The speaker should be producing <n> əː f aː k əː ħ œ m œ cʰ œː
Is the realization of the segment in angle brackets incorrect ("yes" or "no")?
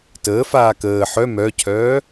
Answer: yes